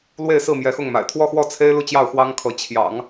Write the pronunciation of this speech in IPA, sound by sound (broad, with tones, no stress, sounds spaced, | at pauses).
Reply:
l w e˥˧ ɪ̯ s ɹ̩˥˩ m j ɛ˧˥ x ʊ˥˩ ŋ m a̰˨˩ ɪ̯ t̪ʰ w ɔ˥˧ x w ɔ˥˩ t͡sʰ e˥ ɪ̯ l u˥˧ t͡ɕ j ɑ˥˩ ʊ̯ x w ɑ˥ ŋ kʰ ɤ˧˥ t͡ɕʰ j ɑ̰˨˩˦ ŋ